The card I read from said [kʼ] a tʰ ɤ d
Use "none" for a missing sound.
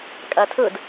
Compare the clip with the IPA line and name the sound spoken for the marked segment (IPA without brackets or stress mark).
kʼ